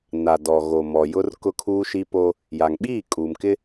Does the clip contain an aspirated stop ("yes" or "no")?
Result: yes